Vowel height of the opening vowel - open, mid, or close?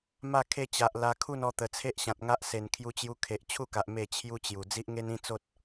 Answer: open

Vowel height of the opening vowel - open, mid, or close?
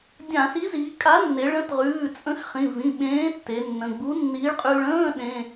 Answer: open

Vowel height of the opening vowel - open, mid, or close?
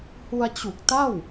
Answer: close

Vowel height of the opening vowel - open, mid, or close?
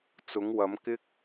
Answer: close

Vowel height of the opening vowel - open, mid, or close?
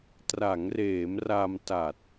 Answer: open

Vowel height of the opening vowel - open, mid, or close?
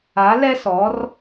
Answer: open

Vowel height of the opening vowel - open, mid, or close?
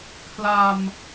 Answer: open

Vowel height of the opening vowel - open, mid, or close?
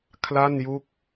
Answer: open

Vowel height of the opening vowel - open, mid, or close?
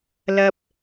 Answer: open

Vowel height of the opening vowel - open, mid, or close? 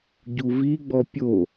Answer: close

